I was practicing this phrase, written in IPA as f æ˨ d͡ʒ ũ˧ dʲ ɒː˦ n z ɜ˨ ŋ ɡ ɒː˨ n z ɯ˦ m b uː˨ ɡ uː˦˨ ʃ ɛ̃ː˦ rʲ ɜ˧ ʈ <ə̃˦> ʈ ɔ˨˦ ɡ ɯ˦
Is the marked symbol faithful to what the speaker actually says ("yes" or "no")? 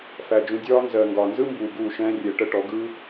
no